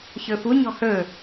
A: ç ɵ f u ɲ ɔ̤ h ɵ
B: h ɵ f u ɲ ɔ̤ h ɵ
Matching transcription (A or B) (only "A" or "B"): A